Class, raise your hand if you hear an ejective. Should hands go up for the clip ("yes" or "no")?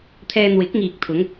no